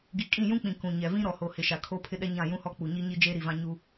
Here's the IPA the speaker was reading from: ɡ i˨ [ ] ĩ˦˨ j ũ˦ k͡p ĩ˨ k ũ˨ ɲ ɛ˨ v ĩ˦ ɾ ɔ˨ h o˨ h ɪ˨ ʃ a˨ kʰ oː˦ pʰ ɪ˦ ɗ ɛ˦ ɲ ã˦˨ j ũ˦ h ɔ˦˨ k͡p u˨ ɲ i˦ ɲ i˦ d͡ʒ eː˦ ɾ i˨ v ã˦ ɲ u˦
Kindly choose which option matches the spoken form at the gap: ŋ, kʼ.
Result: kʼ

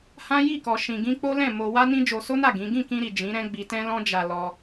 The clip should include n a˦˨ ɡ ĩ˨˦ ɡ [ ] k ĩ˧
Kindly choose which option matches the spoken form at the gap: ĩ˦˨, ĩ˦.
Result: ĩ˦˨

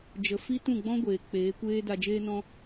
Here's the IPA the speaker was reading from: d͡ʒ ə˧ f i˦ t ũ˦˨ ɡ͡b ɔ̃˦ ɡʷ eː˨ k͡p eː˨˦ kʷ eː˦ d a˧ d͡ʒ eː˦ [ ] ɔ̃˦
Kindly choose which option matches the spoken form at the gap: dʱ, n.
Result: n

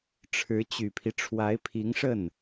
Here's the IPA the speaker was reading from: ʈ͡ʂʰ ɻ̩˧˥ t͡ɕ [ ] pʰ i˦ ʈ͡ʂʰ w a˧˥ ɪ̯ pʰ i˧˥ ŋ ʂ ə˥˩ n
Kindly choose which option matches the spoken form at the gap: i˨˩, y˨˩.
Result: y˨˩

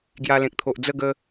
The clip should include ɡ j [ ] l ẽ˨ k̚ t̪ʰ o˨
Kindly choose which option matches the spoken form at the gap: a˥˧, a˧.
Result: a˧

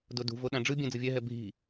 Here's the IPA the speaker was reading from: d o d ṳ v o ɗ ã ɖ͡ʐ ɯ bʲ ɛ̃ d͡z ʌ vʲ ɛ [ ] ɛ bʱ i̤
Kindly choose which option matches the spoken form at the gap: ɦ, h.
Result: ɦ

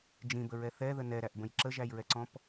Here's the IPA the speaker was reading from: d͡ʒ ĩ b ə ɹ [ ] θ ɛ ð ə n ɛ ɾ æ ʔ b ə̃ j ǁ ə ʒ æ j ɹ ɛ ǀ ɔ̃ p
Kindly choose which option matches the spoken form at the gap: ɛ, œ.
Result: ɛ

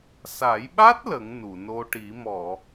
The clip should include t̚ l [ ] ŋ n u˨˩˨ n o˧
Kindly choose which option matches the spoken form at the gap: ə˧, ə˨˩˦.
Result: ə˨˩˦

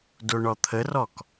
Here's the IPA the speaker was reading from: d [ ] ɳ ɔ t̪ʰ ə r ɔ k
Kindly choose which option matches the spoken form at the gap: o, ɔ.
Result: o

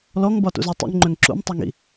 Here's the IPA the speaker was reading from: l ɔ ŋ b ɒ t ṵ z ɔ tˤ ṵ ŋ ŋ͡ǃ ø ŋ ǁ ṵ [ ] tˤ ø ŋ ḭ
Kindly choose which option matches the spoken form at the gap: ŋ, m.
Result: m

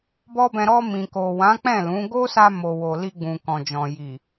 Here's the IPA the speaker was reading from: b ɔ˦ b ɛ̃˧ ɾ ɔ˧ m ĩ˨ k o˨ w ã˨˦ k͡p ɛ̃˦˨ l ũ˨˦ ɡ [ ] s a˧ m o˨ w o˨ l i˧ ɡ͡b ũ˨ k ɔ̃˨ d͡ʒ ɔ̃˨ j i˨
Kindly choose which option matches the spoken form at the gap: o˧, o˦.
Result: o˦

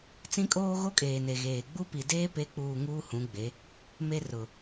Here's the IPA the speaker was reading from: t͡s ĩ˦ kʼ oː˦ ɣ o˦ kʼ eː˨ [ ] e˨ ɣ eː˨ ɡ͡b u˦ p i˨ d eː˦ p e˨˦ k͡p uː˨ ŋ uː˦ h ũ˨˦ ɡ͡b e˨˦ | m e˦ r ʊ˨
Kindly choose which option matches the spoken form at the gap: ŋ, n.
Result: n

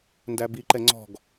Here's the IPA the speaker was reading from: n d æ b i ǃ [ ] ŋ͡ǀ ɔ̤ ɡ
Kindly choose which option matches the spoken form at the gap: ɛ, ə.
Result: ɛ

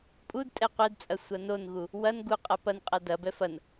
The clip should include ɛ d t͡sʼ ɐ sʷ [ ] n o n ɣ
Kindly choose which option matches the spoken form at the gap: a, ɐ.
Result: ɐ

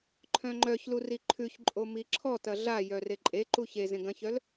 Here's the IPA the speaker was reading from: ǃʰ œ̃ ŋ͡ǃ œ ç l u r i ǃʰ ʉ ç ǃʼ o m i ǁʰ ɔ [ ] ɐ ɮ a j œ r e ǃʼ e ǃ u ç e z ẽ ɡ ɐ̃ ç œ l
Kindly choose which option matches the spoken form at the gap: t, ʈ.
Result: t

